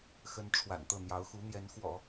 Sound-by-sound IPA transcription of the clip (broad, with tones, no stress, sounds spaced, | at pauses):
x ə˧˥ n ʈ͡ʂʰ w a̰˨˩ n t̪ ɤ˥˩ n̪ j ɑ˧˥ ʊ̯ x u˧˥ n̪ j ɛ˧˥ n x w ɔ̰˨˩˦